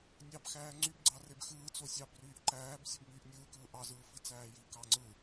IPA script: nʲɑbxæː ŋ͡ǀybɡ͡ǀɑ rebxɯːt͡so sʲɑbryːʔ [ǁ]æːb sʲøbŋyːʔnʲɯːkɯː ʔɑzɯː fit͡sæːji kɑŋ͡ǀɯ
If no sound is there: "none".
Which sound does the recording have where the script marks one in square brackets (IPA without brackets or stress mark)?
ǃ